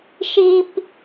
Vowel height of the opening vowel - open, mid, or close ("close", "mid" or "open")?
close